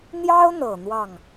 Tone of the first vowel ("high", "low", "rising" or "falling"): high